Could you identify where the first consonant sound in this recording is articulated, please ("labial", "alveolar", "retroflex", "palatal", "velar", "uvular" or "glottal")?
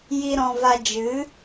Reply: palatal